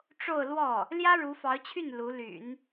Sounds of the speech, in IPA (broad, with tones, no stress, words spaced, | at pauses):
ʈ͡ʂo˥˧ʊ̯lwɔ˥˩ | ljä˥ ɻu˧˥fɑ˧˥ʊ̯t͡ɕʰy˥˩n lu˧˥ly̰˨˩˦n